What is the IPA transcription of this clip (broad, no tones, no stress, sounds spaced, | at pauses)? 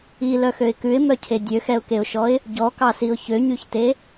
i l œ x ø ɪ̯ k ʉ ɪ̯ m œ cʰ e dʲ ø x ɛ ʊ̯ k e ʊ̯ ʃ ɔ ɪ̯ | ɟ ɔ k ɑ s i ʊ̯ ç ø ɲ y ç t e